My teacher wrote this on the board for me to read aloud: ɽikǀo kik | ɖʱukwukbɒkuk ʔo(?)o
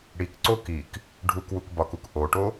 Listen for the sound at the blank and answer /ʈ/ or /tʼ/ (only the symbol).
ʈ